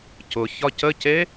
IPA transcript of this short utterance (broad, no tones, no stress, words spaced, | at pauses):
cʊ çɒcəce